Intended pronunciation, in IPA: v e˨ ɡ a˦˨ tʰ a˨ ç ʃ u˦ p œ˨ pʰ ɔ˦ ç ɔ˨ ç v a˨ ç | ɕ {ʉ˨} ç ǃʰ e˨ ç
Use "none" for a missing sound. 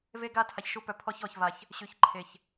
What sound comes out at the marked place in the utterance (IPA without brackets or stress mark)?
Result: ʉ˨